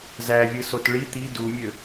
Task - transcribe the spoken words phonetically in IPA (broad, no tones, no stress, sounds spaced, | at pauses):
z æ vʲ ɯ s o t ɭ i t̪ i d u mʲ ø